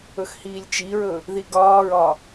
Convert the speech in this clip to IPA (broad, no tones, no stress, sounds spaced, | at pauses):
ɵ x h iː lʲ t͡ʃ i ɹ ɵ | ð i ɡ ɒː ɹ ɒ